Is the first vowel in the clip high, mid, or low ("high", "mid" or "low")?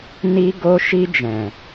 high